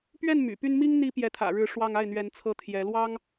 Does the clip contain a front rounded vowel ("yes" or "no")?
yes